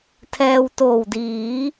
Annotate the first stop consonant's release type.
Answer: aspirated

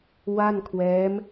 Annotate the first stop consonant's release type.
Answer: aspirated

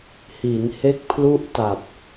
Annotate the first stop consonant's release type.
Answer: plain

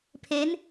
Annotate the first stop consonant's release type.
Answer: aspirated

